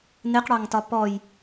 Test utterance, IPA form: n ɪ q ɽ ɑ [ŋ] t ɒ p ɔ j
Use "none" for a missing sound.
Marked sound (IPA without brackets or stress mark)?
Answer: ŋ